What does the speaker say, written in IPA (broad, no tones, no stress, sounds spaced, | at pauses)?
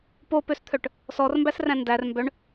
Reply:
p o p ø s t̪ʰ œ ʈ | s ɔ r m b æ s r æ̃ n d æ r m b œ ɳ